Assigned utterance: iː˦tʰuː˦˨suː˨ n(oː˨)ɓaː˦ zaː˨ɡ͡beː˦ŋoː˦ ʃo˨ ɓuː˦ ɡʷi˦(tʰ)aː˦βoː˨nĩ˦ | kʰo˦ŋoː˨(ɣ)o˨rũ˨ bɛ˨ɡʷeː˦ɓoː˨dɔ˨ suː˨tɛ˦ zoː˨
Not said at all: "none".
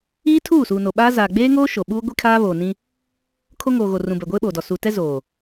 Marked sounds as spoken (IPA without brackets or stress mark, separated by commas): o˨, kʰ, ɣ